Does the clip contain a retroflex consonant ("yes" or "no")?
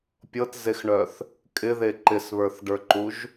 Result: yes